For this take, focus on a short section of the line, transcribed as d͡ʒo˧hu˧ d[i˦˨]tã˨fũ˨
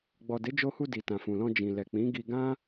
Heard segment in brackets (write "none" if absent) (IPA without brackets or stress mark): i˨